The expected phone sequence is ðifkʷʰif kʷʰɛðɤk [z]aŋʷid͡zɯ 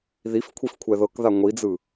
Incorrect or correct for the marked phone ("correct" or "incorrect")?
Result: incorrect